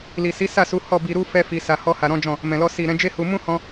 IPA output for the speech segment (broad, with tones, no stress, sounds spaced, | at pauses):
l i˨ s i˨˦ s a˦˨ s u˨˦ h ɔ˦˨ b i˧ ɾ u˦ f ɛ˦ f i˧ s a˧ h ɔ˦ h a˧ ɾ ɔ̃˦ d͡ʒ ɔ̃˦˨ | m ɛ̃˨ l ɔ˧ s i˨ ɾ ɛ̃˨˦ d͡ʒ e˦ h u˧ m ũ˦ h ɔ̃˧